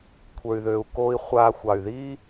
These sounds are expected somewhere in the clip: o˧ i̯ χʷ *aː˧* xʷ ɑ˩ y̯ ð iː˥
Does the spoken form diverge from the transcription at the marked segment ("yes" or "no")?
no